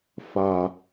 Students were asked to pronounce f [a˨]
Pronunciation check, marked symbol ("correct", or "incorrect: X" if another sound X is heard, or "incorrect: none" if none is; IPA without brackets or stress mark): correct